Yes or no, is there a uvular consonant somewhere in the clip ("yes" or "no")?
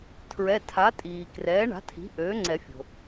no